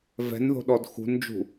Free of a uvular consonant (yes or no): yes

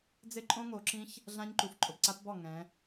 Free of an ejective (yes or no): no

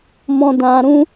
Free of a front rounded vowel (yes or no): yes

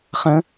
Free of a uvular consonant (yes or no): no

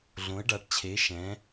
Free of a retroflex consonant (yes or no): no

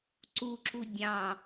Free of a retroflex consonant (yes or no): yes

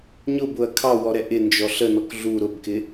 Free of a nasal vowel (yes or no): yes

